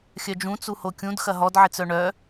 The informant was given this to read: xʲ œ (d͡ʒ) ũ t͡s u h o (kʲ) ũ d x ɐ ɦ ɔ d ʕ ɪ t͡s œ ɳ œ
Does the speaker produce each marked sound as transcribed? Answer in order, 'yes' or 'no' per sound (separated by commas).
yes, yes